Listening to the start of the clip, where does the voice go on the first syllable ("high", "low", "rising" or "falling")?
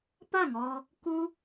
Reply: falling